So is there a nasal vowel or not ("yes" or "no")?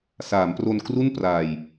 no